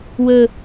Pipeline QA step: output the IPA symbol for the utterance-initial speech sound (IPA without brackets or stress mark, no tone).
w